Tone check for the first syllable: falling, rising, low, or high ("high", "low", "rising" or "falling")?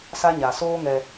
high